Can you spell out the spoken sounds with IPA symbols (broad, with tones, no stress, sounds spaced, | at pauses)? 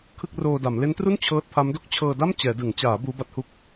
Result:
kʰ ɯ˥˩ k̚ r oː˧ d a˩˦ m l e˦˥ n t r u˥˩ n t͡ɕʰ ɤː˦˥ t̚ pʰ a˦˥ m d o˥˩ k̚ t͡ɕʰ ɤː˧ d a˥˩ m t͡ɕ ɛː˩˦ d ɯ˩˦ ŋ t͡ɕ aː˩˦ b uː˦˥ b a˦˥ t̚ h u˥˩ k̚